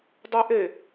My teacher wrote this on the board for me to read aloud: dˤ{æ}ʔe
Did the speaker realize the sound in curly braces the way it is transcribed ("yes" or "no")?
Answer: yes